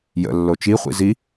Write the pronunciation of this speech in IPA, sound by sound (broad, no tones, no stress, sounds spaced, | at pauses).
j ə̰ lː o t͡ʃ i χʷ ḭ z i